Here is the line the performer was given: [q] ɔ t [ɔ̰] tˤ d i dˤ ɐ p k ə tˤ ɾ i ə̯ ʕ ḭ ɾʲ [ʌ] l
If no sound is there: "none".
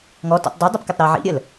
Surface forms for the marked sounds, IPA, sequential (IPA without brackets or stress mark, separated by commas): ŋ, ɔ̰, ə